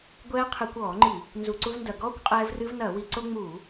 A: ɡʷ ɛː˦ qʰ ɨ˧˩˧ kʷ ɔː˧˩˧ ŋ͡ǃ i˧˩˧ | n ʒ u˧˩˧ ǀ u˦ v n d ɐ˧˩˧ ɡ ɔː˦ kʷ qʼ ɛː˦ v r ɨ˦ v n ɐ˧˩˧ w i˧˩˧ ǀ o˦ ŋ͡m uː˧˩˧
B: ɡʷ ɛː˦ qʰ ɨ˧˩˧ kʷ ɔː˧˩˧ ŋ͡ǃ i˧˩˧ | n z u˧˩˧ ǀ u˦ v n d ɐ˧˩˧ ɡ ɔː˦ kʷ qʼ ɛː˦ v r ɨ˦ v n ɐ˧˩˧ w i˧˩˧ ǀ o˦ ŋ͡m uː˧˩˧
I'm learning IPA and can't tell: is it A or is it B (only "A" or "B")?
B